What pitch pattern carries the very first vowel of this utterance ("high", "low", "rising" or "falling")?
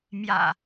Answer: low